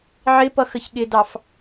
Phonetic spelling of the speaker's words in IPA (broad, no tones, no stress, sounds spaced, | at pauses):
ʕ ɪ p ʌ x ə ç ɠ ɪ d ɑ f